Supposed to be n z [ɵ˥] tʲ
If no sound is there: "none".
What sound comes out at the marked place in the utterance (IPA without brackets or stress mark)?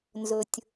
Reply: ɵ˩